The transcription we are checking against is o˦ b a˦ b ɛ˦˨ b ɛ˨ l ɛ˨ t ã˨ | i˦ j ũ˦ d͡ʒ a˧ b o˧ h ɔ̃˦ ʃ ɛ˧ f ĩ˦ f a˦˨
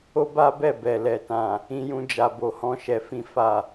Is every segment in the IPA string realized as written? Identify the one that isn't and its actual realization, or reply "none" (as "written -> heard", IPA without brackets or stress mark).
i˦ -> ĩ˦